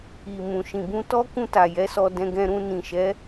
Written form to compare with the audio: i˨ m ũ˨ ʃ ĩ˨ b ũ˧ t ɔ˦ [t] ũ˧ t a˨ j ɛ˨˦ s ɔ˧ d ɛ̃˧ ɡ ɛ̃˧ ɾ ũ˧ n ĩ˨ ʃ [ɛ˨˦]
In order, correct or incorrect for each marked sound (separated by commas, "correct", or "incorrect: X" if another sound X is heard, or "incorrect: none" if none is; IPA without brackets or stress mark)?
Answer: incorrect: k, correct